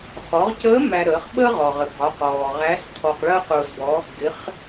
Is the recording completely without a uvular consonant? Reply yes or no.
no